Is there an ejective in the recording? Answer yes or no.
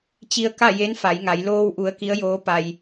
no